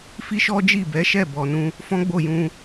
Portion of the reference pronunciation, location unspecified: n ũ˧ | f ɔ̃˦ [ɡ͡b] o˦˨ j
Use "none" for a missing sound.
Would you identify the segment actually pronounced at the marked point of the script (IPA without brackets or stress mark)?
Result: ɡ͡b